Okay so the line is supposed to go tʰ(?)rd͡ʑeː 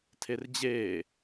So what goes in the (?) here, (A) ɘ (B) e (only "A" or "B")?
B